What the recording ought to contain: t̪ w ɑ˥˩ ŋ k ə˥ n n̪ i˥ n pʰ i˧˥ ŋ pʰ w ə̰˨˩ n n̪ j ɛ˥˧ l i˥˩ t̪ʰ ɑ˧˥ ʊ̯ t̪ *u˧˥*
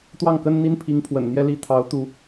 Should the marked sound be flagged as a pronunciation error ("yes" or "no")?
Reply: no